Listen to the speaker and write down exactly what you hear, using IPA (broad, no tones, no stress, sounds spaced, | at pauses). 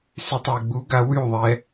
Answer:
s y tˤ w ɪ ɡ͡b u ɡ a w y ðˤ ɛ